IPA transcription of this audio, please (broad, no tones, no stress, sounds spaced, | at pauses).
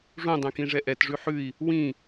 ʐ ũ dˤ ɛ̃ k ĩ ʐ ɛ ʔ ɛ t ʐ ʉ ħ ʉ i̯ | w ĩ